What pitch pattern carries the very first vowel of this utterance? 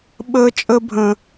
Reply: high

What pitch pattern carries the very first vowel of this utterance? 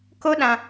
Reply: high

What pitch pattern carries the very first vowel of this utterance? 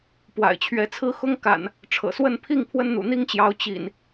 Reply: low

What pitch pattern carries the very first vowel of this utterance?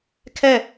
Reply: falling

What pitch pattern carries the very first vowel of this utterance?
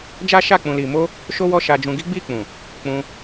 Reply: high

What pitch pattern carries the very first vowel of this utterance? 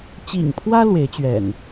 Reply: low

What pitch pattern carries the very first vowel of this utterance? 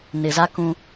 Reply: low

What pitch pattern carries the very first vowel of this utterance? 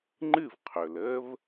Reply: falling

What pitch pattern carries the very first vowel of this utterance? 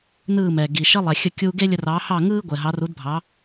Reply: falling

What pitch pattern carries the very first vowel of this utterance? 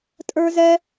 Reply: high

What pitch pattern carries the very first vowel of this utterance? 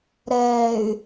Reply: low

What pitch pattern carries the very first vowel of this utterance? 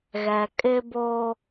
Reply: low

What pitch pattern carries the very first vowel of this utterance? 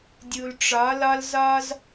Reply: low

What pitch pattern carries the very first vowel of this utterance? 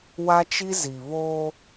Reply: high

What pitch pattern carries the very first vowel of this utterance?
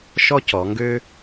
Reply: high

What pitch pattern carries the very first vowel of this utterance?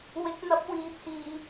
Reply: rising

